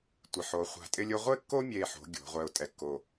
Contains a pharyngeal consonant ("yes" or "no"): yes